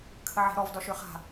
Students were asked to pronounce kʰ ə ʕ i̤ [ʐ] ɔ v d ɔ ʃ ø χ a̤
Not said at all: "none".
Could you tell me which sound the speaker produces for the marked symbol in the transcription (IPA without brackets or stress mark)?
ɾ